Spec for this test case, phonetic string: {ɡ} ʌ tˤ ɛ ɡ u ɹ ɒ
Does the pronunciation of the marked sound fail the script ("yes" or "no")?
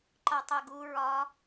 yes